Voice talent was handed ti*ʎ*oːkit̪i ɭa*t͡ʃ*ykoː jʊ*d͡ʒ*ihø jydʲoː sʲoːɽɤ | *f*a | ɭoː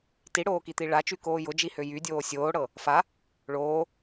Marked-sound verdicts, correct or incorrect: incorrect: ɽ, correct, correct, correct

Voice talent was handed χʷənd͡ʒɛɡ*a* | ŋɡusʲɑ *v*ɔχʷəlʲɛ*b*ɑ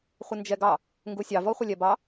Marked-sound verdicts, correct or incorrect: incorrect: ɑ, correct, correct

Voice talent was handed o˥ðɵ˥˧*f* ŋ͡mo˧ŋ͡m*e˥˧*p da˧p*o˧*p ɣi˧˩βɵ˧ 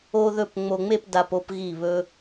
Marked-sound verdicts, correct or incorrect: incorrect: p, correct, incorrect: o˥˧

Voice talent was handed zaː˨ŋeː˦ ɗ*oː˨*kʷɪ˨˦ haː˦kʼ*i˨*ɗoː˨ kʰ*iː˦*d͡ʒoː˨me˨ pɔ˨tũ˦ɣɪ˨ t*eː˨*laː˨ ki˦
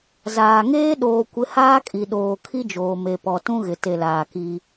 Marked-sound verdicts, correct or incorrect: correct, correct, incorrect: i˦, incorrect: e˨

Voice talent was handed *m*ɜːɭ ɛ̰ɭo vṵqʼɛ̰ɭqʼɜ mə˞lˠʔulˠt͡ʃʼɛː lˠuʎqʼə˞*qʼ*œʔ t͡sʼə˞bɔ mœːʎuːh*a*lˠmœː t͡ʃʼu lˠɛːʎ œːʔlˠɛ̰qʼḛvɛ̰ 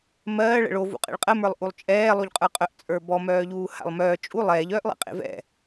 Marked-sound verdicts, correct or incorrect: correct, correct, incorrect: a̰

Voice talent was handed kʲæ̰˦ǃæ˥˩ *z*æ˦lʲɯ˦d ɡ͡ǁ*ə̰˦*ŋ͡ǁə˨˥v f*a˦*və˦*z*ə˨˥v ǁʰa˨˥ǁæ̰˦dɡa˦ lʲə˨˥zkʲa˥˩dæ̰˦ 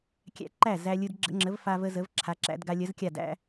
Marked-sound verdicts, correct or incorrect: correct, correct, correct, correct

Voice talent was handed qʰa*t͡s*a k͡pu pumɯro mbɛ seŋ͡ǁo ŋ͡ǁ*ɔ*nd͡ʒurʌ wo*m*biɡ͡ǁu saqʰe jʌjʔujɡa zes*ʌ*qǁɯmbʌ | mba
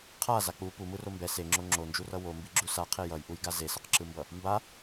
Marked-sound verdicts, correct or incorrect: incorrect: z, incorrect: o, correct, correct

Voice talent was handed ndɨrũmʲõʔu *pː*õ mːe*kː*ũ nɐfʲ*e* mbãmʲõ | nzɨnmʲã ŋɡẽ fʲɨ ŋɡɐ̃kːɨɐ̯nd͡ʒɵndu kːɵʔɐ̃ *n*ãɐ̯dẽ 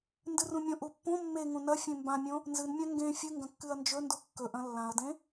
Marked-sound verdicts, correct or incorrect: correct, incorrect: ŋ, incorrect: ẽ, incorrect: lː

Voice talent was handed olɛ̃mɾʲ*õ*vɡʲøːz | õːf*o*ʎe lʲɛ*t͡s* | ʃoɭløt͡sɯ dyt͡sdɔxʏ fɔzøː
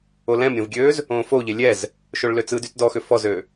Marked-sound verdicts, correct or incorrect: correct, correct, incorrect: z

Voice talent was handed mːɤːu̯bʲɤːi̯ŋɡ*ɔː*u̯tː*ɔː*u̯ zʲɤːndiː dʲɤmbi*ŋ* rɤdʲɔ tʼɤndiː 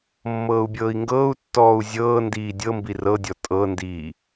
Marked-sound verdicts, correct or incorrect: incorrect: ɤː, correct, incorrect: none

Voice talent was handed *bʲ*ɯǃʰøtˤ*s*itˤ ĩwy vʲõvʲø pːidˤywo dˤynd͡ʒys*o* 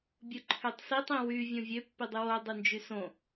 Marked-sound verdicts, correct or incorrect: correct, correct, incorrect: õ

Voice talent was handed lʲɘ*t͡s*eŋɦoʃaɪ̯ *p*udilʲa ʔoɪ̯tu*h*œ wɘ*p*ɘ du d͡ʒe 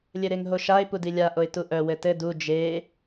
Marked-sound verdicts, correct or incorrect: incorrect: ɾ, correct, incorrect: ʔ, incorrect: t

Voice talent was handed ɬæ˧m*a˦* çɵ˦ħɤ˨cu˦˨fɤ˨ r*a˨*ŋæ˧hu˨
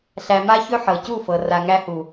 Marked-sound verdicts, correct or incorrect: correct, correct

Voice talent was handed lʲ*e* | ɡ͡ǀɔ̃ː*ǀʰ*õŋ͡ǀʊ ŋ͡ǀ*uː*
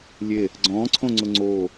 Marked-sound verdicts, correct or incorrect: correct, correct, incorrect: oː

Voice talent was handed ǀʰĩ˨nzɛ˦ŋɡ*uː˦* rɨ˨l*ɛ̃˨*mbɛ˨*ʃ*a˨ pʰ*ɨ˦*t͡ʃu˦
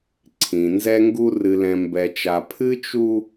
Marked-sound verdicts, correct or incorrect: incorrect: u˦, correct, incorrect: t͡ʃ, correct

